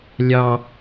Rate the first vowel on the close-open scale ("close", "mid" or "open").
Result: open